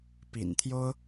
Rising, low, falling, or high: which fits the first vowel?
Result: low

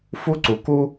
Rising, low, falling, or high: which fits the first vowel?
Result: high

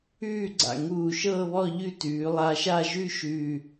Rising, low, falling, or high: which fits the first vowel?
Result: falling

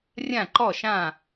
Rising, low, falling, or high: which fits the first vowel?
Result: falling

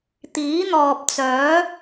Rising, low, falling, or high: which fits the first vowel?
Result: rising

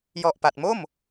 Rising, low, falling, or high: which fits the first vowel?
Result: low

